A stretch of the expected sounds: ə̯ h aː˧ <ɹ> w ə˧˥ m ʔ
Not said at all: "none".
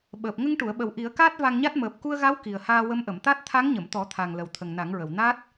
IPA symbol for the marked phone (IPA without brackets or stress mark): none